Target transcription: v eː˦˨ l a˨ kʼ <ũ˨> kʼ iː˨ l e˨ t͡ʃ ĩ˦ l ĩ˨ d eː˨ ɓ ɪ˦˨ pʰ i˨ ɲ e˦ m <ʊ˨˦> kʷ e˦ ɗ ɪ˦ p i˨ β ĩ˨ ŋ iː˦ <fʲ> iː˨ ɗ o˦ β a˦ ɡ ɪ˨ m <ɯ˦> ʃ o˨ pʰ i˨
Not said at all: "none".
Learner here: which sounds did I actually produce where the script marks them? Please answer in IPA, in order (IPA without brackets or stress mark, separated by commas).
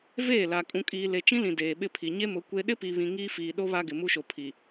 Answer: ũ˨, ʊ˨˦, f, u˦